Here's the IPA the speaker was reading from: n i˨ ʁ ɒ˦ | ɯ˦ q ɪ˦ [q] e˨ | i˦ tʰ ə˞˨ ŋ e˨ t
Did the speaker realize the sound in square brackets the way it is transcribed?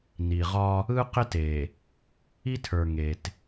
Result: no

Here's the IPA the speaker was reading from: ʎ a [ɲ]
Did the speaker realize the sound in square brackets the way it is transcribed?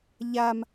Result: no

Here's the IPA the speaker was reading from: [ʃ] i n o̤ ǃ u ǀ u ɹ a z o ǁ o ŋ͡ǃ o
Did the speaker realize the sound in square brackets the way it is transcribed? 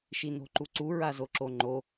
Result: yes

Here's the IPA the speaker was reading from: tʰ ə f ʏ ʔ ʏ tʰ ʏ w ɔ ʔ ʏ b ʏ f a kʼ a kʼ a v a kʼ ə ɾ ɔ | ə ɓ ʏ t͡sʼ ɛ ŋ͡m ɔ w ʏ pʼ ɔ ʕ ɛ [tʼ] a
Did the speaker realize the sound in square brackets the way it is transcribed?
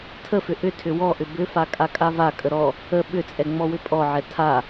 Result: no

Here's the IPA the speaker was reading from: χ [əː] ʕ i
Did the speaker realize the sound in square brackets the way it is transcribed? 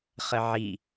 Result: no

